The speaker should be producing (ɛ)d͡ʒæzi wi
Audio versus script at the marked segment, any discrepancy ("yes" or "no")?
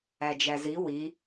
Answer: yes